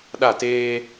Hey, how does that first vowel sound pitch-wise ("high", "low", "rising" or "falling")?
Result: falling